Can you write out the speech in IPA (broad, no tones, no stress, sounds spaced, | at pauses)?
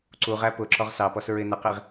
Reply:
ǀ u ʁ æ p ʊ ǁ ɔ ʁ s ɑ p ɔ s ɹ ɪ n ə q i ʁ